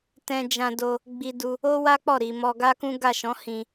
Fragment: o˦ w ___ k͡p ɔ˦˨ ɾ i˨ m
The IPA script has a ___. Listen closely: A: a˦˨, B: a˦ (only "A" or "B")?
B